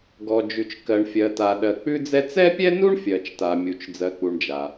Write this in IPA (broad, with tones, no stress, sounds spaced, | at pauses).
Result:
ɡ ɔ˩ d͡ʒ ʉ˩ t͡ʃ k ɜ˩ ɳ fʲ ɜ˩ t a˩ ɗ ɜ˩ k͡p ʉ˥ d͡z ɛ˥ t͡s ɛ˥ pʲ ɛ˥ n u˥ ɳ fʲ ɜ˩ t͡ʃ t a˩ mʲ u˩ t͡ʃ d͡z ɜ˩ k͡p u˩ ɳ d͡ʒ a˩